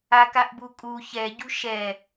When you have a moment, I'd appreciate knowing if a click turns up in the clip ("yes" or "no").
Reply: no